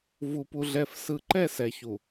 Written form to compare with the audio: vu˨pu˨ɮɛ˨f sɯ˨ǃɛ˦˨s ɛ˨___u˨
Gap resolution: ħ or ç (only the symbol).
ç